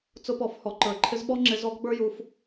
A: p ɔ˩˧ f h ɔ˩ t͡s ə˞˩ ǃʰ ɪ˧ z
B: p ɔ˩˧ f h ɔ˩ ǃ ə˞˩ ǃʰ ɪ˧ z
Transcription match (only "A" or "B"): B